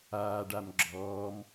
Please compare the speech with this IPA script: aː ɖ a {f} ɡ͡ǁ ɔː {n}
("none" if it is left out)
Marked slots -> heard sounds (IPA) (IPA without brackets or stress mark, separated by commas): m, m